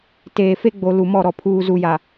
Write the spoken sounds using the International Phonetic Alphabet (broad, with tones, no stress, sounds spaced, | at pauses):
t eː˨ f e˦ ɡ͡b o˨ l u˨ m ɔ˦˨ ɾ ɔ˨ pʰ uː˨ z u˨ j a˨